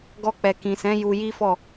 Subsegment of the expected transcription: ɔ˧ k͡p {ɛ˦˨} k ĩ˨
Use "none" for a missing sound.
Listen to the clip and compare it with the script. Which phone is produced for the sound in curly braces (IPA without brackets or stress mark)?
ɛ˨